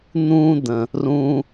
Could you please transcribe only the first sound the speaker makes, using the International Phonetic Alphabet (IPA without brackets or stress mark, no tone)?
n̪